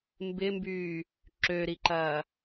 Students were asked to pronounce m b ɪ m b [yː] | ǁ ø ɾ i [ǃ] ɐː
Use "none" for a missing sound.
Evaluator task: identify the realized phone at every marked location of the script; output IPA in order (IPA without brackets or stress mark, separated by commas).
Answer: yː, ǃ